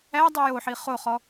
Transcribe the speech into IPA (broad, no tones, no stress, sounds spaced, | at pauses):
æ dˤ i j o ħ i χ o χ ɔ